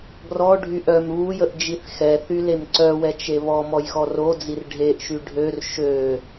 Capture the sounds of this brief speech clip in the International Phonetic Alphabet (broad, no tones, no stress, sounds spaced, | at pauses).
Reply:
ɡ r ɔ ɖʱ y ʔ œ m β u j ə ʔ d͡ʒ i θ x ɛ θ y l e m ǀ œ w ɛ t͡ʃ e β ɔ m ɔ j x ɔ r o d͡z i r ɖʱ e ʔ ʃ y ɖʱ ø r ʃ ø